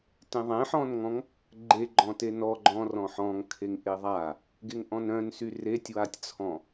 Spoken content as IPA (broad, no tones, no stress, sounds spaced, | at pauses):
t ẽ ðˤ ẽ ħ ɔ̃ n ŋ ɔ̃ ŋ | ɡ͡ǃ e ɡ͡ǃ ɔ̃ t e n ɔ ɡ͡ǃ ɔ̃ r ɔ̃ ħ ɔ̃ ŋ kʰ e ŋ ʔ e ðˤ a | ɡ e ŋ ʔ ɔ̃ n œ̃ n s y r e tʲ w a tʲ t͡sʰ ɔ̃